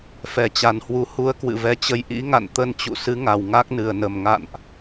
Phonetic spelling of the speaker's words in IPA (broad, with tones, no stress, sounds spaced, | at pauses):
f ɛ˨˩ t͡ɕ a˨˩ n h w u˨˦ h u˧ ə̯ k w ɨ̰˧˨ v ɛ˨˦ t͡ɕ ə˧ j ʔ ḭ˧˥ ŋ a̰˧˨ n t̪ ə˧ n t͡ɕ ṵ˧˨ s ɨ˨˦ ŋ a˨˩ w ŋ a˦˥ k̚ n ɨ˨˩ ə̯ n ə˨˩ m ŋ a̰˧˨ n ʔ